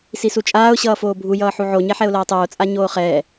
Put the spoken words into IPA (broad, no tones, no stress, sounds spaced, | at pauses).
s i s u t͡ʃʼ aː ʊ̯ ɕ ʌː f oː bʱ u j ʌː ħ u ʕ o ɲ ɛ ħ ɛ ʊ̯ l ʌː tˤ oː t͡sʼ a ɲ oː χ ɛː